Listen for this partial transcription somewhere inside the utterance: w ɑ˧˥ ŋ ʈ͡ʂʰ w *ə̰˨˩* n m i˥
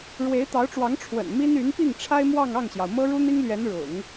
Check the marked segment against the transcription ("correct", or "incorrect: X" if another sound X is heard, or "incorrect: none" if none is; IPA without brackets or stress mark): correct